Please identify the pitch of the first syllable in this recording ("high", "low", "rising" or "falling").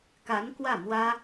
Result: rising